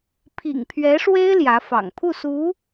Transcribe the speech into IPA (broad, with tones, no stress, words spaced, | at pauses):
pʰḭ˨˩ŋpʰɥɛ˧˥ʂwe˥ɪ̯ ljä˧˥fɑ̰˨˩ŋ pʰu˥˩su˧˥